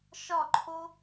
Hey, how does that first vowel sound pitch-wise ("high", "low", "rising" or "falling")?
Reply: falling